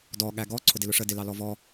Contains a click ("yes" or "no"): yes